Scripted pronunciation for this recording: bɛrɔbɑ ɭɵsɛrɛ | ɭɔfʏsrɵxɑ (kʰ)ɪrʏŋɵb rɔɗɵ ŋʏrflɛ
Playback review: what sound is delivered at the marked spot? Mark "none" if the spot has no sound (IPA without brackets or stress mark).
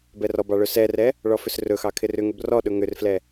kʰ